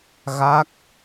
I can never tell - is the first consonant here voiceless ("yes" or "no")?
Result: no